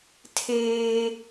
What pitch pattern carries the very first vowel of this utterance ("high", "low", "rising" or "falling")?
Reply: high